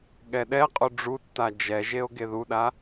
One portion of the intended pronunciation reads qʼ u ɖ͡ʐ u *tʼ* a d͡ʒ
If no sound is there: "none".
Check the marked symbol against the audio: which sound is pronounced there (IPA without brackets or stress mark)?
tː